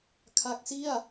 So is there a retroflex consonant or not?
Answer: no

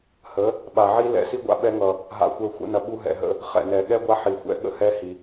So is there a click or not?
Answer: no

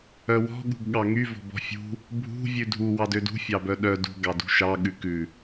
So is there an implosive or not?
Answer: yes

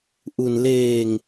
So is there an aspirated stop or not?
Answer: no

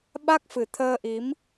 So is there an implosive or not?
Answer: yes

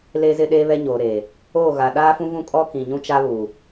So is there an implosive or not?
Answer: yes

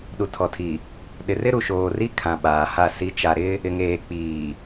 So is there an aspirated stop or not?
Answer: yes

